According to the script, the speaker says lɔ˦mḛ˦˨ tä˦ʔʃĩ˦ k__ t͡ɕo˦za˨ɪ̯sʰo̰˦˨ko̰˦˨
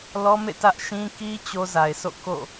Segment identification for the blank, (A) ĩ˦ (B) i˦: B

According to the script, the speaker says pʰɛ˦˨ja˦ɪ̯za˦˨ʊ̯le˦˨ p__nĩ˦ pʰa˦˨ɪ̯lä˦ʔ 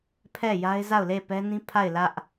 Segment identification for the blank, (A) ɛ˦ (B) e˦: A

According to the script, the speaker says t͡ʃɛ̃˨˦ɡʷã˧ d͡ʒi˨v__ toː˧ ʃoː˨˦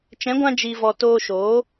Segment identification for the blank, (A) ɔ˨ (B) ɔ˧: A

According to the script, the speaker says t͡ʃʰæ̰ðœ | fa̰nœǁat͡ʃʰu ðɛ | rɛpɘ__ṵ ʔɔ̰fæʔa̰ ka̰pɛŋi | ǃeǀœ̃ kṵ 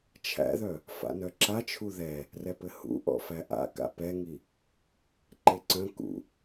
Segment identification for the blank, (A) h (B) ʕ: A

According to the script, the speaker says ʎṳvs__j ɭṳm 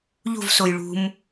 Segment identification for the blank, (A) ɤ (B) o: B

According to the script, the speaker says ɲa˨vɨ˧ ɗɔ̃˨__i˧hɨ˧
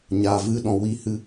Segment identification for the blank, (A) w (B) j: A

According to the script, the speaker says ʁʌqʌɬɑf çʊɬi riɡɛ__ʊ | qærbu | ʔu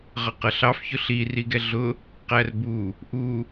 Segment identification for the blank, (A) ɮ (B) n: A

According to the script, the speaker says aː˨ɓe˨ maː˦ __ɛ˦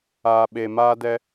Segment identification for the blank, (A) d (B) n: A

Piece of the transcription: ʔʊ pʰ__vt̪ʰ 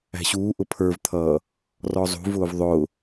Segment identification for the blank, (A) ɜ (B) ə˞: B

